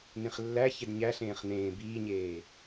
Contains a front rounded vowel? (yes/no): no